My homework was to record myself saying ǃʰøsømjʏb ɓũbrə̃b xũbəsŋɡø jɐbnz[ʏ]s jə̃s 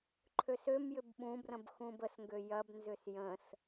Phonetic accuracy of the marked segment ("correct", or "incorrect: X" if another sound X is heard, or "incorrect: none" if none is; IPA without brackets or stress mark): correct